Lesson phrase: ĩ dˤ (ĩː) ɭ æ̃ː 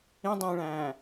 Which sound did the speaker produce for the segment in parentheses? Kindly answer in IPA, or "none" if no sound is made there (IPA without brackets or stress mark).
ĩː